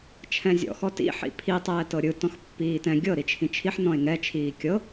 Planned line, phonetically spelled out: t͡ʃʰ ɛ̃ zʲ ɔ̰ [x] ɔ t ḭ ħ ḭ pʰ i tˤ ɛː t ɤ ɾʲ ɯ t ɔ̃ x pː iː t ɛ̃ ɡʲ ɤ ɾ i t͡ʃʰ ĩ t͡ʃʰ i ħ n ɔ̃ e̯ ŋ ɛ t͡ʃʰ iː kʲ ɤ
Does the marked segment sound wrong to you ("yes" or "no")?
no